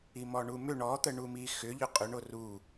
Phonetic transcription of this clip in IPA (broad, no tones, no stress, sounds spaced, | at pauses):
i m ɔ ɳ u m ʏ ɳ ɔ t̪ ə ɳ u m i x ʏ ʎ ʏ qʼ ʏ ɳ o r u